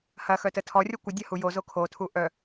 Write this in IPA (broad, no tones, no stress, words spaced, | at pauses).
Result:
hɐxœtə tʰɔrʲɔ kʷədʲɐhu jozo kʰotʰu ʔœ